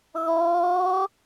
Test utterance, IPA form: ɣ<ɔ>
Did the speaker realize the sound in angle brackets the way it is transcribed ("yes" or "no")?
no